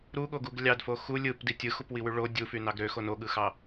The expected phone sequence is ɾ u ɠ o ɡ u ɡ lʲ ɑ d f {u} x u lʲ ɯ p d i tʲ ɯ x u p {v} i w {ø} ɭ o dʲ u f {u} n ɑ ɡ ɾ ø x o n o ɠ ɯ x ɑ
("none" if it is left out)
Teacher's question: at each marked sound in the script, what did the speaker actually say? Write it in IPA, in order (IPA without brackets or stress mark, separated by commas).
o, w, y, y